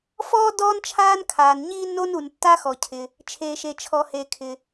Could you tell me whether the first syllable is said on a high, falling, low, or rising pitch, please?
high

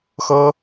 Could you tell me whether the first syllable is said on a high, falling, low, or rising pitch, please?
high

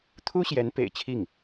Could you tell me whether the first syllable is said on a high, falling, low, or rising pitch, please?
high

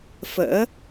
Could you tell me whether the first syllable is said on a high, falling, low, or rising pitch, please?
rising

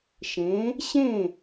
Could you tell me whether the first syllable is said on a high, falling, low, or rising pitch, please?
rising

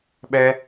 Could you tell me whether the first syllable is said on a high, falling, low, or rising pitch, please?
high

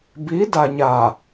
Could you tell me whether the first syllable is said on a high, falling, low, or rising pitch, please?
rising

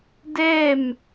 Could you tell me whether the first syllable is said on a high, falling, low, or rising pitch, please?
falling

